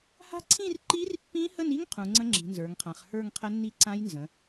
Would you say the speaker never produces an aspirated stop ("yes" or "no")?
no